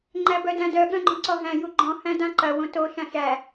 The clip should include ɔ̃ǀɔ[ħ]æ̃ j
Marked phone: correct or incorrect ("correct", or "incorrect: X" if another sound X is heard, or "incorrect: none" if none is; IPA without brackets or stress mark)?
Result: incorrect: ɦ